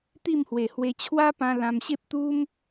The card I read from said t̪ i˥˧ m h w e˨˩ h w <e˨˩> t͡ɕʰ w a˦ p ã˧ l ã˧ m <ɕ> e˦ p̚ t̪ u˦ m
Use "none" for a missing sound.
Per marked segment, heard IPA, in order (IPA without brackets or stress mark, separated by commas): e˧, ɕ